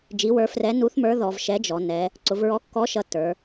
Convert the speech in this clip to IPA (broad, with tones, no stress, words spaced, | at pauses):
d͡ʒi˨˥wə˞˨˥ frɛ˨˥ nu˨˥θmə˞˨˥ ðɔ˩˧vʃɛ˨˥d͡ʒɔ˩˧ nɛ˩˧ | ǀʊ˩˧vɹɔ˨˥ kːɔ˨˥ ʃʌ˨˥tːə˞˩˧